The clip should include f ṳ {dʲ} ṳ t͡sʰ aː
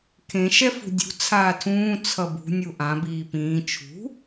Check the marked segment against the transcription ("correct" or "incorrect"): correct